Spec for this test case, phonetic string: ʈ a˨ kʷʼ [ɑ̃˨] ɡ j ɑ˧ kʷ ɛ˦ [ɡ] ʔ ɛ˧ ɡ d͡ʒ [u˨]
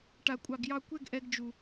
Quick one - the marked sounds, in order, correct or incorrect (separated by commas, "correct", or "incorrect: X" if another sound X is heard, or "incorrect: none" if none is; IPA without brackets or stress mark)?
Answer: incorrect: ɑ˨, correct, correct